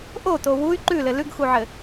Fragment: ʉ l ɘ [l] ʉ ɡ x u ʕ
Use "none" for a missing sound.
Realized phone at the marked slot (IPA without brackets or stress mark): l